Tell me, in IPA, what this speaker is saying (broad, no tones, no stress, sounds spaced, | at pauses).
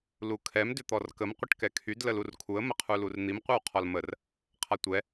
l u kʰ ɛ m d ʏ t̪ ɔ r k ə m qʷ ə ʈ k ɛ kʰ y d l ə l u r kʰ u ə̯ m ə qʰ u l u r n̪ i m qʷ ɛ w qʰ ɔ l m ə r | qʰ a tʷ ɛ